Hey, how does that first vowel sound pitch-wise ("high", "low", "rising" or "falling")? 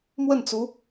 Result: falling